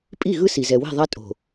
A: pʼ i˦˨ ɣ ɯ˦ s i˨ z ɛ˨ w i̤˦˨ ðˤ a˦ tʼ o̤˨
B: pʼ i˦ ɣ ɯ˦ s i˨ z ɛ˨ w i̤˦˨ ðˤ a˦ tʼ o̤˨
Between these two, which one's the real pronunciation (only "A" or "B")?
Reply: A